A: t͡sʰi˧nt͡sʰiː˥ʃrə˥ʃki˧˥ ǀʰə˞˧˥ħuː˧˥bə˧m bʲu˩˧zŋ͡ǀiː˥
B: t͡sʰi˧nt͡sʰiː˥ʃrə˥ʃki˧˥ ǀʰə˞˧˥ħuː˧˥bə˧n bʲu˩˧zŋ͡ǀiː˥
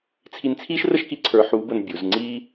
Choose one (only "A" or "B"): B